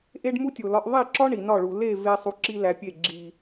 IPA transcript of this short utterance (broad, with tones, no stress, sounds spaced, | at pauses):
ʔ e˦ ɖ m u˦ tʲ o˨ l ɒ˧ ʔ ðˤ i˦˨ ǁ ɒ˦ ɳ i˨ n ɒ˦˨ ɭ u˨ l e˦˨ v e˧ sˤ u˧ ǁ i˦ l æ˧ pʲ e˦˨ ɡ͡ǁ i˨